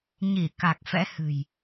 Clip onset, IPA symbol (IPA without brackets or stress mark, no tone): ɲ